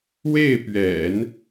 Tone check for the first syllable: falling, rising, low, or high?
falling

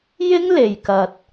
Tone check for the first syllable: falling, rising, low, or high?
high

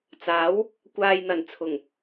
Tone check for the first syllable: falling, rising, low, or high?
rising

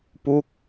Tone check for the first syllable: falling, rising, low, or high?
falling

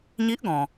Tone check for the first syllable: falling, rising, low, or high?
rising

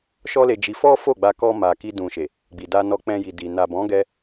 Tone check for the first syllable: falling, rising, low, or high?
high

